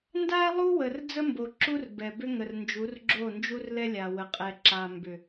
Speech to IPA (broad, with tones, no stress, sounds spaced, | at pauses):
n d a˦ lˠ u˦ w ə˨ r d͡z ə˦ m b o˨ ǁ u˦ r b ɛ˨ b ʏ˦ ŋ ə˨ r n d͡ʒ u˨˦ r ɡ͡ǁ o˦˨ n d͡ʒ u˦ r l ɛ˦ lʲ a˨ w ə˨ qʼ ɛ˨ ǁ a˨ m b ʏ˨